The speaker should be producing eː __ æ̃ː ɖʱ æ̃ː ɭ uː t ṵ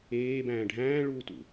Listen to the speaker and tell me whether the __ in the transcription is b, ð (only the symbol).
b